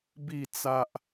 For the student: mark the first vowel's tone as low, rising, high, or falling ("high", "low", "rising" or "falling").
falling